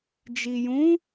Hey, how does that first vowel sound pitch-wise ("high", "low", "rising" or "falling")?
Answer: low